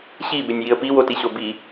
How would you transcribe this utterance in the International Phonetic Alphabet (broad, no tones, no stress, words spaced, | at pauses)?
ɕibɪnʲjiə̯ piwotiɕo bi